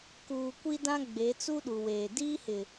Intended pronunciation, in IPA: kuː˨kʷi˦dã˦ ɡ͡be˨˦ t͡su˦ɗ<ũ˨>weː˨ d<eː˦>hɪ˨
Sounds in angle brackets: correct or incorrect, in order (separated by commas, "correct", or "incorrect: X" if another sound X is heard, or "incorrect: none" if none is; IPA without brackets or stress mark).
incorrect: u˨, incorrect: iː˦